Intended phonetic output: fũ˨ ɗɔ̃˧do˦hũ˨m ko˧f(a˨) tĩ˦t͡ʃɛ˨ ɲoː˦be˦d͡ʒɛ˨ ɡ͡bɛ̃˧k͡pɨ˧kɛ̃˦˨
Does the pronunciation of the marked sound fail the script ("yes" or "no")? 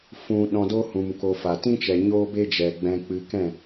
no